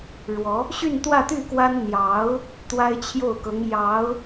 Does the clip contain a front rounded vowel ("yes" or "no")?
yes